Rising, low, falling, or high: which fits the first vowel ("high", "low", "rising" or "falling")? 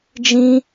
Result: high